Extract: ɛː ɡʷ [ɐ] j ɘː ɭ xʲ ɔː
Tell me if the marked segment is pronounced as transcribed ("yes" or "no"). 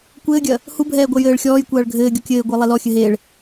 yes